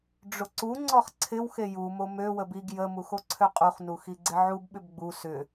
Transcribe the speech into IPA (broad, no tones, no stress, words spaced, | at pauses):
ɖ͡ʐʊǀuŋ͡ǀɔχ ǀʰɪw xejumo møwəb iɡ jəmux oǀʰøqʼuχnu xiɡ͡ǀɪʕubɓʏb ɡ͡bu sʏ